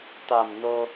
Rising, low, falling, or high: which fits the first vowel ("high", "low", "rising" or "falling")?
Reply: low